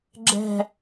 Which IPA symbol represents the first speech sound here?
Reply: ɡ͡ǁ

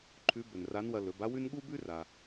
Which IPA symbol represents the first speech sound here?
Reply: ǃʰ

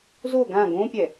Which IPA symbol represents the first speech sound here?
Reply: z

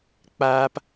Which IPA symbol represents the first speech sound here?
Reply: k͡p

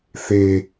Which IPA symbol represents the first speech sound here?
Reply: θ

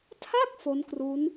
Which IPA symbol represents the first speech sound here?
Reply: tʰ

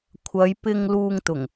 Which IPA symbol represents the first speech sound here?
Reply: kʷʰ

